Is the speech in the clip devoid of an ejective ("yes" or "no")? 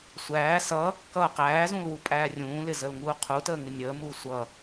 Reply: no